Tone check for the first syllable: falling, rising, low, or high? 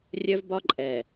high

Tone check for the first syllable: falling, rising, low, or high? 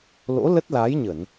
rising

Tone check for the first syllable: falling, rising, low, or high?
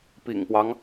low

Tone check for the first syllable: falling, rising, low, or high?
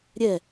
falling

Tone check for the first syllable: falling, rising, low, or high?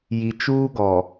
low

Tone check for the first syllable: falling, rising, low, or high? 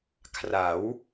rising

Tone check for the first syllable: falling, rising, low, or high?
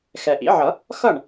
low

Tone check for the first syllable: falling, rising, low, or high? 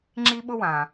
high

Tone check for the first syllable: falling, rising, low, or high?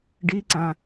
rising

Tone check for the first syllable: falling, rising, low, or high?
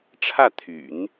falling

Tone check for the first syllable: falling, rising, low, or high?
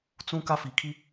high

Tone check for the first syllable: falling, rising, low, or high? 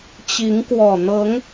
rising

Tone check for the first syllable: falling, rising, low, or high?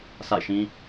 falling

